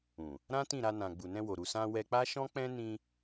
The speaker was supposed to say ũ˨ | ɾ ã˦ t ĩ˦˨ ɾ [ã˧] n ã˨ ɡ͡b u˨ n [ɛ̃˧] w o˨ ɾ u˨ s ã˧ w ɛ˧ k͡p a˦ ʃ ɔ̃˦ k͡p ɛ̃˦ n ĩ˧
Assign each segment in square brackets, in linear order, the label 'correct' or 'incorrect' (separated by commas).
incorrect, correct